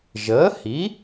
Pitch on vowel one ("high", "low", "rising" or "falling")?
rising